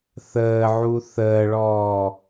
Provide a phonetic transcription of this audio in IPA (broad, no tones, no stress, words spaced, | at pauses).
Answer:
θəːʕu θəːɭɔː